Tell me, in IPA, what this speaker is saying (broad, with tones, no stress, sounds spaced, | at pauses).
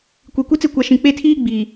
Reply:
kʷ i˨ kʷ i˦ t͡s ɪ˦˨ kʷ a˨ ʃ ĩ˨ k͡p e˦˨ tʰ iː˦ ɡ͡b iː˨